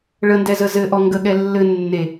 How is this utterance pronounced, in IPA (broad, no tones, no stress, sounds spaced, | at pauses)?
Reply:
ɭ ə n d ɛ z ə z ɘ ʔ ɔ ŋ ɡ ə ɠ ɛ lː ɘ nː e